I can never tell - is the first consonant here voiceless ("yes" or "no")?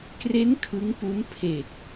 yes